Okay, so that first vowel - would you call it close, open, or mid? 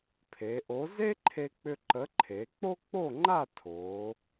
mid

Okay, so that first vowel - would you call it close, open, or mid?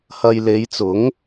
open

